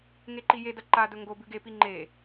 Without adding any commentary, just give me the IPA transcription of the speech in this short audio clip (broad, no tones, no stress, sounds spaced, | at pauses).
ŋ e ǃ i j e d ɐ ǃ a d ɵ ŋ ɡ o b ʉ ɡ e p i ŋ͡ǃ e